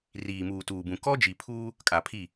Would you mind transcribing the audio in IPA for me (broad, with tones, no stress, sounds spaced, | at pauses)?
r iː˨ m uː˨ t uː˨ b ũ˨ k ɔ˦ d͡ʒ i˨ pʰ uː˦ | kʼ a˨ pʰ i˦˨